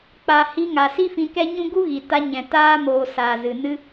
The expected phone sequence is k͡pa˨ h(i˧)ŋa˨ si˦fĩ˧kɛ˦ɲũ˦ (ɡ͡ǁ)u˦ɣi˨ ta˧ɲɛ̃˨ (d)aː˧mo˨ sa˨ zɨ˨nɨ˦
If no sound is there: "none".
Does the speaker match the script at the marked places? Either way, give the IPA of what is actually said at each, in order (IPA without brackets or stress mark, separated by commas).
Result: i˧, ɡ, t